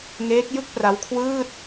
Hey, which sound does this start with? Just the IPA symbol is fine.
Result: ŋ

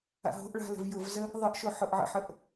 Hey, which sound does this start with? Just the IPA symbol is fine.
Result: a̰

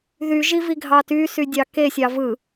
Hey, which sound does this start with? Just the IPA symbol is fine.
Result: ð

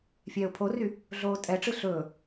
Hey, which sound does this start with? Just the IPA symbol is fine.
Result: fʲ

